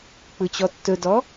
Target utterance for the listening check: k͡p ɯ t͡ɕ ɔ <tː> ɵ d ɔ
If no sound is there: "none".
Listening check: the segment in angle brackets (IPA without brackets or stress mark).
tː